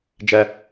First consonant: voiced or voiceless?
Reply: voiced